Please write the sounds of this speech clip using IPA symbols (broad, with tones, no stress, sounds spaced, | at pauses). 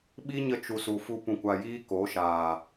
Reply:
ɓ i˦ ɲ ə˧ t͡ʃ u˨ s u˨ f u˧ p ũ˨ kʷ a˨ j iː˦ k o˨˦ ʃ aː˨